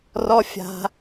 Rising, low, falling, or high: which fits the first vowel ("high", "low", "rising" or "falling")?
high